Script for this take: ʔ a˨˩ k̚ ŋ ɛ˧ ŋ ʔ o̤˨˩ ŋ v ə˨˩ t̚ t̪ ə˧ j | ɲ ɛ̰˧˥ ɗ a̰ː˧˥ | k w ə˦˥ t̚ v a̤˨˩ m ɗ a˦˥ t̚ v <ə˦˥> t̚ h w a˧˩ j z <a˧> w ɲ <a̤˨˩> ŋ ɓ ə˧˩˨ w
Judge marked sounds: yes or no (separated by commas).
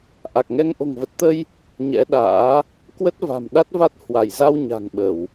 no, yes, yes